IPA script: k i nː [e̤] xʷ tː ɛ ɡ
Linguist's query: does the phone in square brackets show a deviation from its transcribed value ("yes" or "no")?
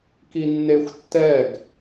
yes